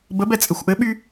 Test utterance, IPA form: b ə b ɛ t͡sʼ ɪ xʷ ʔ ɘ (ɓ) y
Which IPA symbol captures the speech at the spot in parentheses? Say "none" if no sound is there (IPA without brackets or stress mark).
ɓ